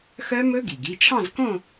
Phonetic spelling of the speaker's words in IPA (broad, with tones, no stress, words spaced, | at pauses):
xœ˦˥mɵ˦˥ ɡi˩ɡi˩˧˩t͡ʃʰɑ̃˥˧zkõ˥˧